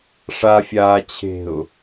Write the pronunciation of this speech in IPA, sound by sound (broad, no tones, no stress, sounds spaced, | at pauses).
ʂ a fʲ aː t͡ɕʰ e̤ ʊ̯